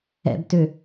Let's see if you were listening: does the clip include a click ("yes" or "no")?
no